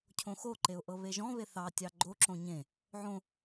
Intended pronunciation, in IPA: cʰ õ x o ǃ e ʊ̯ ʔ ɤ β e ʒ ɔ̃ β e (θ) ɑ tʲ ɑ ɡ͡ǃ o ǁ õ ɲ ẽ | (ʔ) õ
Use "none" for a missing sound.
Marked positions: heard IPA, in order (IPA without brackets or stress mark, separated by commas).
θ, ʕ